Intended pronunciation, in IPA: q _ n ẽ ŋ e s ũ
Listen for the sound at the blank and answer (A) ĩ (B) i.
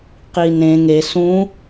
B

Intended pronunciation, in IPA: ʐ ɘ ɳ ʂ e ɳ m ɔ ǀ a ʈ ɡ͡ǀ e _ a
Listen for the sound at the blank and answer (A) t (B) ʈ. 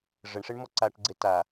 A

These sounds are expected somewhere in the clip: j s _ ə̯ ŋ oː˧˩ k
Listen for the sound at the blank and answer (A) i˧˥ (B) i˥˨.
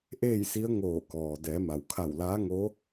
A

